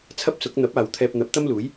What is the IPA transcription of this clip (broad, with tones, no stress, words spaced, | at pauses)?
t͡sʰɐ˥p̚sʊ˨˥k̚ n̪ɐ˨˥p̚aː˨˧wt̪ʰɛː˧p̚ n̪ɐ˨˥p̚t̪ɐ˥mluː˨˥j